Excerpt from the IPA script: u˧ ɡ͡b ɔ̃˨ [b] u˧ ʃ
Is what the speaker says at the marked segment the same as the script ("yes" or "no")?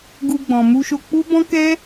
no